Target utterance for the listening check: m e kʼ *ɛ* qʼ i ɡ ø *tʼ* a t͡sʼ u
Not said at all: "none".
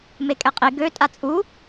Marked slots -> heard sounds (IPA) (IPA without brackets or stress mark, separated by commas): ɛ, tʼ